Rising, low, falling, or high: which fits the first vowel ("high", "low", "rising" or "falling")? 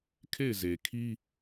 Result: falling